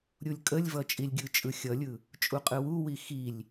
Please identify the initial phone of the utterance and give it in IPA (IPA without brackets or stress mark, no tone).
ɾʲ